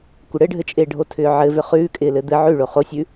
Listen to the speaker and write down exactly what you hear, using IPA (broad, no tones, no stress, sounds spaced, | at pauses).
kʷ ɘ ɽ ɘ ɖʱ ɘ t͡ʃʼ ɪː ɖʱ o tʰ ʏː ʕ ɘ v ʏ χ ʉː kʼ ɪː l ɘ d̪ ɘ ʕ ʉ ɭ o χ o sʲ ʉ